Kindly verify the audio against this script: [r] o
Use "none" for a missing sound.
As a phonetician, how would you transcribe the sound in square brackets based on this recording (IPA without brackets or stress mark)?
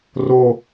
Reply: r